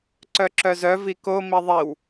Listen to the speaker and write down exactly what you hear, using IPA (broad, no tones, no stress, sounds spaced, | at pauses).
ǀ œ ǁ œ z œ v i k o m i ðˤ i w